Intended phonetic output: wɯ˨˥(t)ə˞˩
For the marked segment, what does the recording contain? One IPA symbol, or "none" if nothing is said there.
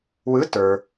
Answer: t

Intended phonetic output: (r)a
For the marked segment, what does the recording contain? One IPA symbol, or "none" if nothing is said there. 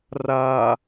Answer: r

